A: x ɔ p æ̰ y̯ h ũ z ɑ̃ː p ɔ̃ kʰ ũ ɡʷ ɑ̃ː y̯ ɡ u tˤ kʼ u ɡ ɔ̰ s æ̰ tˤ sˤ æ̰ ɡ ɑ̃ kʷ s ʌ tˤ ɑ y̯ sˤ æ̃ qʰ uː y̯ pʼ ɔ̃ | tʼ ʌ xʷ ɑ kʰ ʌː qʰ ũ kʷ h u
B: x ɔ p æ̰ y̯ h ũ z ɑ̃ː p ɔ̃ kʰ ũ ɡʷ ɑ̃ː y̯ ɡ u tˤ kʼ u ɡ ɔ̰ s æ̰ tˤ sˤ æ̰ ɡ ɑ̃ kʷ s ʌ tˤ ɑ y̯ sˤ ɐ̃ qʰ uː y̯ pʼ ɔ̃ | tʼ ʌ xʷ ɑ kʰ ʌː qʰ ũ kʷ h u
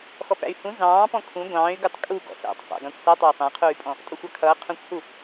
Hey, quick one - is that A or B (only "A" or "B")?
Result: A